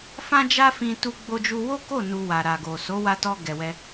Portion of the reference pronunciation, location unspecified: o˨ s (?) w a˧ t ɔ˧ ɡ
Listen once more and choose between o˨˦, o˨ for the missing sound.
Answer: o˨˦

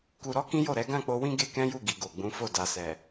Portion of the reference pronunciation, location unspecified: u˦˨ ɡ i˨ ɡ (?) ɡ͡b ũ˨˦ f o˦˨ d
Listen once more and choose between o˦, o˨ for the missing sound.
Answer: o˨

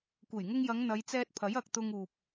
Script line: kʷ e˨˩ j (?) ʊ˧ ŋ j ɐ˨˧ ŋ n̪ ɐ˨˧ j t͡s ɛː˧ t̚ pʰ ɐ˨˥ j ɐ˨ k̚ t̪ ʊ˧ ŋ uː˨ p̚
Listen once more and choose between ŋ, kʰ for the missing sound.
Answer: ŋ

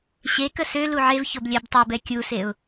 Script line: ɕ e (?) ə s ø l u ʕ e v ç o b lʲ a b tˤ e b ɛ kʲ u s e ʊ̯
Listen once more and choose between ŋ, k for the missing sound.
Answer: k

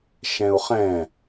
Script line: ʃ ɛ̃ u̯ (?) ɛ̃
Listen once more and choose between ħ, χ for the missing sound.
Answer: χ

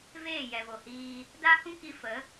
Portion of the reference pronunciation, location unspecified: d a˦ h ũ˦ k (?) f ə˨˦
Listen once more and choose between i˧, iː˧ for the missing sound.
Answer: i˧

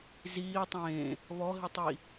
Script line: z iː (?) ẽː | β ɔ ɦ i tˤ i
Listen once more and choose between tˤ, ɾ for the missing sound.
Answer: tˤ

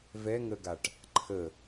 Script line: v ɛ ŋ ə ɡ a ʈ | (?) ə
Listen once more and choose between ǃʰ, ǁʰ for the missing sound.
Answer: ǃʰ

